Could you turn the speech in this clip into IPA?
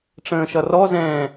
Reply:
ʈ͡ʂ ə̃ː ʃ ʌ r ɔ z ɛ̃ː

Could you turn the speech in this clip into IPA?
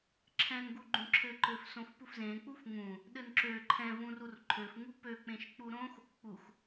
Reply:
ǁʰ ɛ̃ n ɡ u ɡ͡ǃ ũ ǁʰ ɘ ǃ ø f s õ f p u f z ẽ k͡p u f ŋ ũ | ɗ ɘ n ǁ ø ǃʰ ɛ̃ v ũ r u r ǃʰ ø f ŋ u p ø k͡p ẽ ʃ k͡p u ɾ õ x | k͡p u x

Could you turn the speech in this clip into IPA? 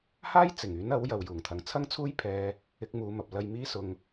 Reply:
h aː˥ j t͡s ɪ˨˩ ŋ yː˨˥ n ɐ˨˥ w j ɐ˨ w j uː˨˩ ŋ t̪ʰ ɐ˨ ŋ t͡sʰ ɐ˥ ŋ t͡sʰ uː˥ j pʰ ɛː˧ | ɪ˧ k̚ m uː˨˧ m ɐ˨ p̚ l ɐ˧ j m iː˥ s ʊ˧ ŋ

